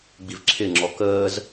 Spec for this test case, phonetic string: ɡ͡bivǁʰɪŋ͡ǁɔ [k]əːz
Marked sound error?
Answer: no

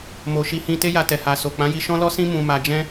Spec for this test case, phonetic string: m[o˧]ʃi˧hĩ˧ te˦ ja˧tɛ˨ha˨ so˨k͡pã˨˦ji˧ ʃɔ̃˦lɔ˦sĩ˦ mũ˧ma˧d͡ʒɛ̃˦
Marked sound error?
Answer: yes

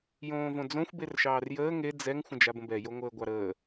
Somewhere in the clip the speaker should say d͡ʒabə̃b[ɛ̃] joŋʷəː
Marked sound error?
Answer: yes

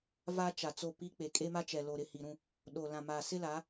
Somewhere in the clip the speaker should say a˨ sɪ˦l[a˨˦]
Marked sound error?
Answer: no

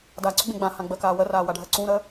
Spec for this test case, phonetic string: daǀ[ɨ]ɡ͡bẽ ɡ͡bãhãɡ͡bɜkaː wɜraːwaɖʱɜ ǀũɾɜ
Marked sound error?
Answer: yes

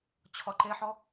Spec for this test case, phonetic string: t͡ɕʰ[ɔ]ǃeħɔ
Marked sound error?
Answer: no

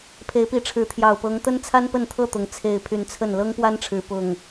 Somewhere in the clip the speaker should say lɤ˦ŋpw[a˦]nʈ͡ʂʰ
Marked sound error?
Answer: no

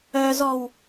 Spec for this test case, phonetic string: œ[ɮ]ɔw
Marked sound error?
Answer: yes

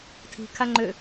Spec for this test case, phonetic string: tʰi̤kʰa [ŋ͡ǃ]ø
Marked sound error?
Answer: no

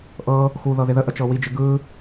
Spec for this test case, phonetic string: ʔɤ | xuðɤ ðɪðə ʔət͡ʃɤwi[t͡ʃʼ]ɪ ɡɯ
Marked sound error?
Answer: yes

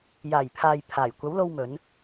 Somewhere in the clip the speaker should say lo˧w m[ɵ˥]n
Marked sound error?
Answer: yes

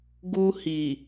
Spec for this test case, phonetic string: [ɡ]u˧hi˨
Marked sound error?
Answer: no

